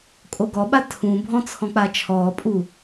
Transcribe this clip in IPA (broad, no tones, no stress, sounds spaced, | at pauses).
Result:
kʼ o ɡ ɔ ɓ a tʰ ũ bʱ ɔ̃ t͡sʰ ɔ̃ k͡p a t͡ʃʰ ɔː pʼ u